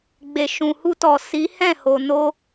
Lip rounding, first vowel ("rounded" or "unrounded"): unrounded